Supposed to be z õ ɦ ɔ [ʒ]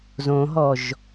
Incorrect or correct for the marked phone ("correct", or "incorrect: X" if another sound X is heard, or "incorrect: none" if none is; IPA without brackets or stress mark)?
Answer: correct